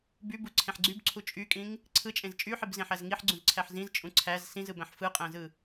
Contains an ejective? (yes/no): yes